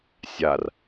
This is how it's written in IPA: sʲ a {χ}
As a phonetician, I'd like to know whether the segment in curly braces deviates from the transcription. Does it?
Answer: yes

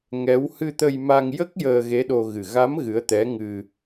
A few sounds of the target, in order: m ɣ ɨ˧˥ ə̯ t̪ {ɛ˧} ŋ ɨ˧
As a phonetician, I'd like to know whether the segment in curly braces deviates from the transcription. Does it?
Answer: yes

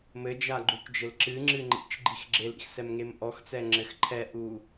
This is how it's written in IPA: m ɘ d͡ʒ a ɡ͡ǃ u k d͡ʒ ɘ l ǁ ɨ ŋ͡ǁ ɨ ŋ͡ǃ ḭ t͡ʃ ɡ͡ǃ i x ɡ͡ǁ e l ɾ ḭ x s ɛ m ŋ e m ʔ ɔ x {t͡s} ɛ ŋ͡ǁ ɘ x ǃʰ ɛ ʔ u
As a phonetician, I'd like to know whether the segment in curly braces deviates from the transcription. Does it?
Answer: no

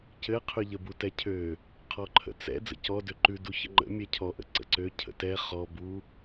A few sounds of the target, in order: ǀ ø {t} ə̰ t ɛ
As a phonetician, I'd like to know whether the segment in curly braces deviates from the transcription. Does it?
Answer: yes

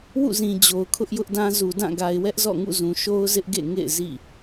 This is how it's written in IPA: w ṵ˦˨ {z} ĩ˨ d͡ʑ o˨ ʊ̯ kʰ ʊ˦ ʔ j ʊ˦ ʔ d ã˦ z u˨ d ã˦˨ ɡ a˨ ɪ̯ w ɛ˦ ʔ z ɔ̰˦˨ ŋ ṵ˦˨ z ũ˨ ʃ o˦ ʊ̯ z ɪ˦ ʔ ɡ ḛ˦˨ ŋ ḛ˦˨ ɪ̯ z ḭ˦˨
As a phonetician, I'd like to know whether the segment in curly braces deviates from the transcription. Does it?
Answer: no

